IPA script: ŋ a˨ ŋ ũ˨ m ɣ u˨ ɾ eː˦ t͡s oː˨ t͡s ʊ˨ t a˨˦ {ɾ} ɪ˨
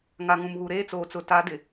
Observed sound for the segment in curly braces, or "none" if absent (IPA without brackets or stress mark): d